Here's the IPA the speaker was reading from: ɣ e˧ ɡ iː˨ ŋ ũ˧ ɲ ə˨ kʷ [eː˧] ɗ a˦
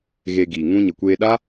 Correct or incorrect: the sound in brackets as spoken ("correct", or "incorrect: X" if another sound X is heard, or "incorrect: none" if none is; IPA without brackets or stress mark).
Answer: correct